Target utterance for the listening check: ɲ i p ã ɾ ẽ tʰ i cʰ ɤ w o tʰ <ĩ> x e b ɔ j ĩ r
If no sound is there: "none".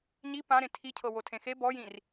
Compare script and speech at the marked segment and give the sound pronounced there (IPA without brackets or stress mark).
ẽ